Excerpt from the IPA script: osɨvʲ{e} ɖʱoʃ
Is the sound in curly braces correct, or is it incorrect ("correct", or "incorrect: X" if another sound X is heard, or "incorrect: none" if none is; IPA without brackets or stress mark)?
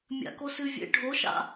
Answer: incorrect: ḛ